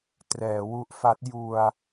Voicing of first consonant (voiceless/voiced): voiceless